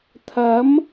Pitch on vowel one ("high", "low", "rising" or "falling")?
rising